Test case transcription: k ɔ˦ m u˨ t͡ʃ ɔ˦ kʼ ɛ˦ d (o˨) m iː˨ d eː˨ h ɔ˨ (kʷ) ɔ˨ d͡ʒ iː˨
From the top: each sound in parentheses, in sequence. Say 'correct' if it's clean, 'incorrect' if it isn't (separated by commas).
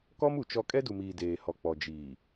incorrect, incorrect